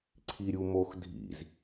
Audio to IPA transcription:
ǀʰ i ɾʲ u m o x dʱ ḭ z

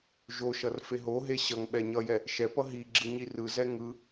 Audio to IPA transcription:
ʒ o ʃ ʌ r f e ɦ o ɦ e ɕ ʌ ŋ ɓ ɛ ɲ ʌ j ɛ | ʃ ɛ p ʌ ɦ i ɡ͡ǁ ɯ ɲ i r ɯ z ɛ ŋ ɯ

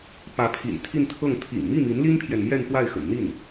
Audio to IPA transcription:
p ä˧˥ pʰ ḭ˨˩ n t̪ʰ i˥˧ n t̪ʰ ɤ˥˩ ŋ t̪ʰ ḭ˨˩ ŋ m i˥˩ m i˧˥ n l i˥ n pʰ j ɛ˨ n m j ɛ˥˧ n p w a˥˩ ɪ̯ x ə̰˨˩ n n̪ i˥˩ n

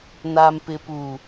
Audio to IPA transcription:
n aː˨ m p ɪ˨ p uː˨

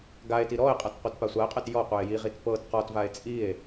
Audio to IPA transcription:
ɡ a e̯ t i ɾ ɔ e̯ qʼ a t qʷ a t p a sʷ a e̯ qʼ ɛ t j ɔ qʷ ɛ e̯ j i ʁ i t p ɤ t q ɔ t v a e̯ t͡sʼ i e̯

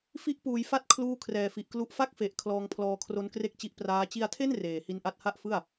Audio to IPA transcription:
f i˦˥ ʔ p uː˩˦ j f a˦˥ t̚ kʰ l uː˥˩ kʰ r ɛː˨˩ f i˨˩ ʔ k l u˥˩ ʔ f a˥˩ k̚ f e˨˩ ʔ kʰ l ɔː˧ ŋ pʰ l ɔː˧ kʰ r o˦˥ n k r e˥˩ k̚ t͡ɕ i˦˥ ʔ p r aː˦˥ t͡ɕ i˧ a̯ tʰ e˥˩ n r eː˨˩ h i˦˥ n ʔ a˦˥ t̚ h a˥˩ ʔ f ɯ˥˩ a̯

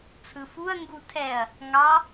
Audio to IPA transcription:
t͡sʰ ɯ f u ɐ̯ ŋ ɡ u tʰ ɛ ɐ̯ | ŋ ɑ

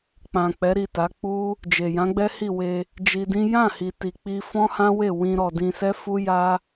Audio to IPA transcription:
k͡p ã˨ k͡p ɛ˨˦ ɾ i˦˨ t a˨˦ k͡p u˦ | d͡ʒ e˨ j ã˨˦ ɡ͡b ɛ˦ h i˦˨ w e˧ | d͡ʒ i˧ d ĩ˦ j ã˦˨ h i˨ t i˨ k͡p i˧ f ɔ̃˦ h ã˦ w e˦˨ w ĩ˧ ɾ ɔ˨ d ĩ˧ s ɛ˦ f u˦ j a˦

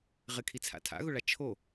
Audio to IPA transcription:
ʁ ɪ kʰ i t͡sʰ a̰ tʰ a̰ ɣ ʊ ɭ a t͡ʃʰ o

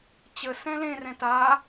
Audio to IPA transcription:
t͡ɕ ə s ɛ̃ l ẽ r ɛ̃ t a

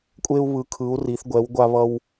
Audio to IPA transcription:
kʷʼ e˧ u̯ β ɯ˩˧ kʰ ɯ˩˧ u̯ r i˩˧ θ ɡʷ ɛ˩˧ w ɡʷ a˧ β ʌ˧ w

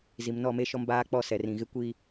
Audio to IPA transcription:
z i˨ m n ɔ˦˨ m e˦ ʃ ɔ˦ m b aː˦ k͡p ɔ˦ s ɛ˨ r ĩ˨ ɣ ɪ˦ kʷ i˦

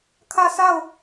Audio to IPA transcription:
kʰ ä˦˨ sʰ a˦˨ ʊ̯

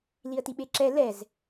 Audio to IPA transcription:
l i ə̯ t i ɓ e ǁ ɛ l ɛ z

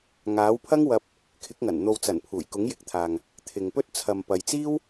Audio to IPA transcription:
ŋ aː˨˥ w pʰ ɐ˥ ŋ w ɐ˧ p̚ | kʰ ɪ˨˥ k̚ ŋ ɐ˨˩ n n̪ o˨ w t͡s ɐ˨˩ n pʰ uː˨˩ j k ʊ˨˥ ŋ j ɪ˨ k̚ t̪ʰ aː˨ ŋ | t̪ʰ ɪ˨ ŋ p ɵ˥ t̚ t͡sʰ ɐ˨ m p ɐ˨ j t͡s iː˥ w

